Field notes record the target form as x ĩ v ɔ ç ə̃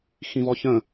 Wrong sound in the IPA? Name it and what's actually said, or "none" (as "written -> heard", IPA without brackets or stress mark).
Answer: none